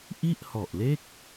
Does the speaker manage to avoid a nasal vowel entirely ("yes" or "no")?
yes